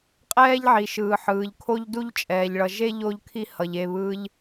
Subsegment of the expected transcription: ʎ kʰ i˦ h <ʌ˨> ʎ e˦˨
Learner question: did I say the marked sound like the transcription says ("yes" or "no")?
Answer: yes